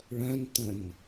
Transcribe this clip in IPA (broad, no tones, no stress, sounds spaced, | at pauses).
ɭ œ̃ n t ə̃ n